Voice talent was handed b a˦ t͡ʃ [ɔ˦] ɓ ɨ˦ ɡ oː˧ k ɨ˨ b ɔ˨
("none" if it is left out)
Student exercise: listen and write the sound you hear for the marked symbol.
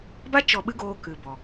ɔ˧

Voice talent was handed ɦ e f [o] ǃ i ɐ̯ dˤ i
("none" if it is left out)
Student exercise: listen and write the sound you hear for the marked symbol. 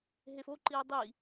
o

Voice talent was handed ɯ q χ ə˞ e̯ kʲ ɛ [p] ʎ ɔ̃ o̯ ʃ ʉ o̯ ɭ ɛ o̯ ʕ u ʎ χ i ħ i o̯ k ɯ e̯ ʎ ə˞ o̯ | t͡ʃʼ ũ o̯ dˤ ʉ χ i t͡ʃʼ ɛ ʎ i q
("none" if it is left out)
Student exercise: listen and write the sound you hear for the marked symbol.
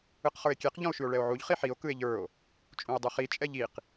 q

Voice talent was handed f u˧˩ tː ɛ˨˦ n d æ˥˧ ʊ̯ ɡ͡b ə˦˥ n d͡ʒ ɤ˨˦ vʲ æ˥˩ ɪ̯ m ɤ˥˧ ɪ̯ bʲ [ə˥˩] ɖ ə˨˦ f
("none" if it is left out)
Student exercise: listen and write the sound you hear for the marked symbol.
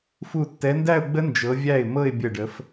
ə˧˩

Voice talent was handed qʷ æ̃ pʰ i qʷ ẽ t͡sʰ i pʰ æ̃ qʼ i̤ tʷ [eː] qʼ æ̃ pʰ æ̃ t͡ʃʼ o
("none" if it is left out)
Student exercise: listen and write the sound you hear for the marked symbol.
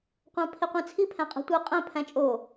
eː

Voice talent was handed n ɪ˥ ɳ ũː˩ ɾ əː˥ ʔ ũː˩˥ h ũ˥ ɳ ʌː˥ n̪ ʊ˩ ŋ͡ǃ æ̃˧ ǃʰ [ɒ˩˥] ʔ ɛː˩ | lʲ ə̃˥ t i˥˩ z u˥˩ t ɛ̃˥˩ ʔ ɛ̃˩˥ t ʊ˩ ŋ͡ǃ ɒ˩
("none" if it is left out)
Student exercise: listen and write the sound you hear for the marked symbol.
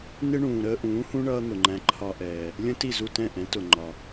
ɒ˧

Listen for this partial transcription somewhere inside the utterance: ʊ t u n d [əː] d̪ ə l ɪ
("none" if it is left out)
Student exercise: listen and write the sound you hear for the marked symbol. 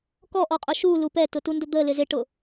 ə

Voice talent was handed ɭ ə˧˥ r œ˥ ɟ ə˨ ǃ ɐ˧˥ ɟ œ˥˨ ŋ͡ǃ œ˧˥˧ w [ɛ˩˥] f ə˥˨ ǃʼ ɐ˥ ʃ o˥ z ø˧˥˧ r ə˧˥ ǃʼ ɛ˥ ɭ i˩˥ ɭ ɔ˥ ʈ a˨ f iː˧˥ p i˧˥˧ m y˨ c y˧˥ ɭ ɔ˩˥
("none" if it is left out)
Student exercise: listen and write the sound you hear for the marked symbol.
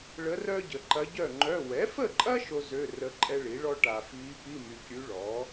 ɛ˩˥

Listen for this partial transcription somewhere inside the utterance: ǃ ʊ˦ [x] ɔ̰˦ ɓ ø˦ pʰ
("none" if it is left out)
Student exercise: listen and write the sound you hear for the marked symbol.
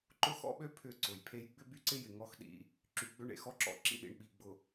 x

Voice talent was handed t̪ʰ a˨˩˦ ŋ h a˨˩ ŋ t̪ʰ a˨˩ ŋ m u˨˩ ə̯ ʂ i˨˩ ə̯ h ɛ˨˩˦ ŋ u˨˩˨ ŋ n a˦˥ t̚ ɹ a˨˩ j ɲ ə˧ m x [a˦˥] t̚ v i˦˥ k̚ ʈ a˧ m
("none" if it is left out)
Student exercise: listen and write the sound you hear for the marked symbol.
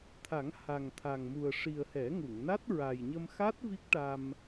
a˦˥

